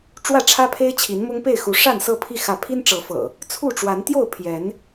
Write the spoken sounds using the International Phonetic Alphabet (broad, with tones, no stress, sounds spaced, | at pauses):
ʈ͡ʂ w ä˥˨ ʈ͡ʂʰ ä˦ pʰ e˦ ɪ̯ t͡ɕʰ i˨˦ n m ʊ˦ ŋ p e˥˨ ɪ̯ x u˨˦ ʂ a˥˨ n s ɤ˥˨ pʰ i˥˨ x ä˨˦ pʰ i˦ n ʈ͡ʂ ɤ˨˦ f ɤ̰˨˩ | t͡sʰ u˥˨ ʈ͡ʂ w a˨˦ n t̪ j o˥˨ ʊ̯ pʰ j ɛ˨˦ n